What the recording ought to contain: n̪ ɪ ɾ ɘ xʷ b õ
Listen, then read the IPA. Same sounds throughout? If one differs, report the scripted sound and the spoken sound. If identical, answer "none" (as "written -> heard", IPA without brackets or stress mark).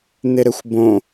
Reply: none